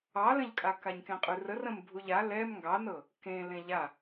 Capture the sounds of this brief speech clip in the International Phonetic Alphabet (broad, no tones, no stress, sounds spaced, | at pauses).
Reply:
ɑ l ə̃ ʎ kʼ a k a ɲ k ẽ qʼ ʉ r ə r ə̃ m bʱ u ʎ a l ɛ m ŋ ɡ ɑ n ɤ | k ẽ l ẽ ʎ a